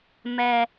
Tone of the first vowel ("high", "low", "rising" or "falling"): low